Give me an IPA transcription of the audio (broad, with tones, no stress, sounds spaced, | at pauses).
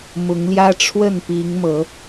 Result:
m ʊ˨˦ ŋ l j ä˦ ʈ͡ʂʰ w ə˥˨ n p i˨˦ ŋ m ɤ˨˦